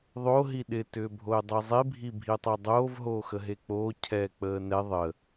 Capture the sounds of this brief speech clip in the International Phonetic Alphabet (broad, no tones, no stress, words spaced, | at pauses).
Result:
ðˤo ɦiɗɪ tʏːbʱoɪ̯dˤizˤi bʱibʱitˤɛdˤoːv ɦoːxəɦek͡poː cʰɛːk͡pəːnɛ ðˤə